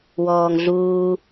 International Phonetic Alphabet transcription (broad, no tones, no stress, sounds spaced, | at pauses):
w ɔː ŋ ɮ uː